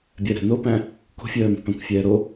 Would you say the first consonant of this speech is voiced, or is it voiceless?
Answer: voiced